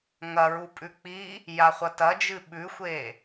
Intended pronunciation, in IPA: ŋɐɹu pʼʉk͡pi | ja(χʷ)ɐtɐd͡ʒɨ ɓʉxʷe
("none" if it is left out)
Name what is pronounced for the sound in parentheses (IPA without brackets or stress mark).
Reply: χʷ